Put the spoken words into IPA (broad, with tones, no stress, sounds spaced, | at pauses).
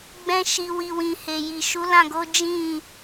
ɡ͡b ɛ̃˧ ʃ i˨ w i˨ w ĩ˨ h e˨ j i˨ ʃ u˨˦ l ã˦˨ ɡ o˨˦ d͡ʒ ĩ˦˨